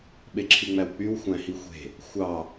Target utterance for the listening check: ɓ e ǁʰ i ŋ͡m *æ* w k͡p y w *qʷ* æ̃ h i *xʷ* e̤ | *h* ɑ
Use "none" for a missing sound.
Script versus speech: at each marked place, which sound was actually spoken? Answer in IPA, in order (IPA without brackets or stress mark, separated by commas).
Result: æ, xʷ, xʷ, xʷ